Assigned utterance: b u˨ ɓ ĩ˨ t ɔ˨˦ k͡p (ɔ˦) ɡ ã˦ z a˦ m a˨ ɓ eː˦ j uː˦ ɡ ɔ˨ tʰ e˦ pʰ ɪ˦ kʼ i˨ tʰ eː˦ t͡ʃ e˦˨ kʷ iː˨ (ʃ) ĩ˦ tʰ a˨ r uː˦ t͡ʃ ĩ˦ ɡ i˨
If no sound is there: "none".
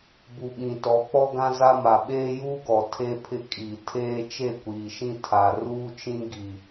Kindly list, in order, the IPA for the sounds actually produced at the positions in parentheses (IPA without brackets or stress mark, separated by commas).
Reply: ɔ˦, ʃ